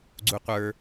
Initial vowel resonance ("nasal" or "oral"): oral